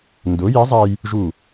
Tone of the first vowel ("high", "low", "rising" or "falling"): rising